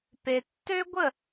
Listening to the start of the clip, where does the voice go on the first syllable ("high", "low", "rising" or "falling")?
low